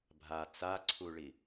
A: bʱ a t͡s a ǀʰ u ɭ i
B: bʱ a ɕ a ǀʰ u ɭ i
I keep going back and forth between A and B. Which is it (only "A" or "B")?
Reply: A